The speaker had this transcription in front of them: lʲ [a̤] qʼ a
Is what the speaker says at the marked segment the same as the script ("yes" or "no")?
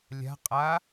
yes